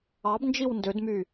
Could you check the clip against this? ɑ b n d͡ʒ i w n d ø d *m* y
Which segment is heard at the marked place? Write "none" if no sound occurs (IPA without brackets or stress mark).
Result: m